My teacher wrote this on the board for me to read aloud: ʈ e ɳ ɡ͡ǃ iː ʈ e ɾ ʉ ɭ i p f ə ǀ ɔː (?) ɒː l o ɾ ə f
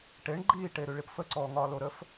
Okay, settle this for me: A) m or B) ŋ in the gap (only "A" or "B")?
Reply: B